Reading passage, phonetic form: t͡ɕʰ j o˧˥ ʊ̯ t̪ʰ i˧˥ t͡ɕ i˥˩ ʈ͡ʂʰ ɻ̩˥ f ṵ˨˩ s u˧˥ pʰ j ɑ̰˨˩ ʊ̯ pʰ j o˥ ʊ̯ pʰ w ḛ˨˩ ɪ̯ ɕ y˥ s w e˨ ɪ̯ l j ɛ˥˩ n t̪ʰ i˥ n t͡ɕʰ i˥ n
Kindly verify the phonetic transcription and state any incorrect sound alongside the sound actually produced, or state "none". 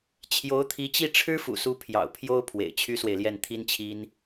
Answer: ɕ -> t͡ɕʰ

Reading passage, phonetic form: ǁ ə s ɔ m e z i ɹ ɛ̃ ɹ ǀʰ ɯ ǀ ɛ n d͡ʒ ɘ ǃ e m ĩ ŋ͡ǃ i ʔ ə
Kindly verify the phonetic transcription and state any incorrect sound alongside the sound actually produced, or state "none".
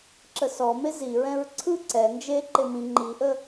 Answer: ɘ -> e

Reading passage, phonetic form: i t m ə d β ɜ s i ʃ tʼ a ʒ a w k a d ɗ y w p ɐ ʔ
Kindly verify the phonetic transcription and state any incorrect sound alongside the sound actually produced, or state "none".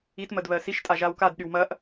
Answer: p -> m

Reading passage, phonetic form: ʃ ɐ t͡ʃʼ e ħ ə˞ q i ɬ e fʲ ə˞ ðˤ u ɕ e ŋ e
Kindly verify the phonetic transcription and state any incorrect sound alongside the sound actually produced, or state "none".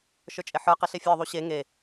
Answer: ɐ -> ə˞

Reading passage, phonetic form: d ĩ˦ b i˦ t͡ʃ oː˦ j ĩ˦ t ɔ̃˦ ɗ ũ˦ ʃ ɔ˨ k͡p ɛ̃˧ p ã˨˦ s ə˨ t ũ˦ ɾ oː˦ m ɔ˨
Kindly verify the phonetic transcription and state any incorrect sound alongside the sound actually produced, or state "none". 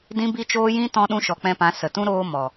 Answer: none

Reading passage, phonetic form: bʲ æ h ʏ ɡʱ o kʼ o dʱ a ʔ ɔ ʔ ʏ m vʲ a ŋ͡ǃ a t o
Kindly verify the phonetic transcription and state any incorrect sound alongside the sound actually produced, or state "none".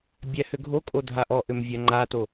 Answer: none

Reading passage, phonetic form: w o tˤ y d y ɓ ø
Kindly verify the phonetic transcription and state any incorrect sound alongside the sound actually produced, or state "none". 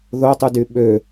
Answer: w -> ð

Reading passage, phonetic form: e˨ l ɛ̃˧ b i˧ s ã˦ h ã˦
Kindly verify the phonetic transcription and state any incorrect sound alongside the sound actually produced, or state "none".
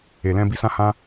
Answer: none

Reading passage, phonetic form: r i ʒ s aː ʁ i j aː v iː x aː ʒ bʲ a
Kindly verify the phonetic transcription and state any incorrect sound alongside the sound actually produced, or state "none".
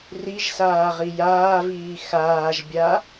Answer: none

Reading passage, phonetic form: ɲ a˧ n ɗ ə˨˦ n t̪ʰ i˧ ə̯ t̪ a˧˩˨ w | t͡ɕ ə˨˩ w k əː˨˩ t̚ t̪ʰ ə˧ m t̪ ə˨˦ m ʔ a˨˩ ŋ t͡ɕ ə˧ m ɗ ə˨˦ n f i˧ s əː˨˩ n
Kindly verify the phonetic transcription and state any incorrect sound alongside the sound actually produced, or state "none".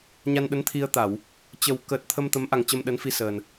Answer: none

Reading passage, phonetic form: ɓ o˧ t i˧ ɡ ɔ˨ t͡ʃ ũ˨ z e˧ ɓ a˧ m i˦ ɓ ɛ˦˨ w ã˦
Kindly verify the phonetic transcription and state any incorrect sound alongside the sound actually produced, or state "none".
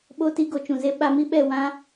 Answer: ɔ˨ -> o˨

